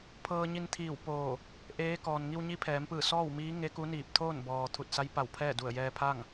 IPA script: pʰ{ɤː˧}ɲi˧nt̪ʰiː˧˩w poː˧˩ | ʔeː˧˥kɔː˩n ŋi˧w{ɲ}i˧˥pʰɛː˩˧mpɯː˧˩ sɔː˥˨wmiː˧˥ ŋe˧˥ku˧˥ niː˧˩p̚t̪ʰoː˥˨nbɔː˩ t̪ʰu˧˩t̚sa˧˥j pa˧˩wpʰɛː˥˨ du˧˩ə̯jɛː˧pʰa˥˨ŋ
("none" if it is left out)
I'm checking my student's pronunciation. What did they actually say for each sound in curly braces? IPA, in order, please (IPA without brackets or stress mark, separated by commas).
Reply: ɤː˧, ɲ